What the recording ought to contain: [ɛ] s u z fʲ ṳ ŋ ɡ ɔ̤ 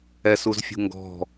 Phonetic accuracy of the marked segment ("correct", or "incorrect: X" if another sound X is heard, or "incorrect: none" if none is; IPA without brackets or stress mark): correct